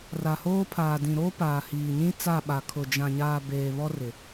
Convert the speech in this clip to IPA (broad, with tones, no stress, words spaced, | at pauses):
ra˨hoː˦pʰaː˨dĩ˨ ɾoː˦paː˨ hiː˨ɲĩ˦t͡sa˦˨ɓa˨ kʰʊ˨ d͡ʒã˨ɲaː˨ beː˨βɔ˦rɪ˨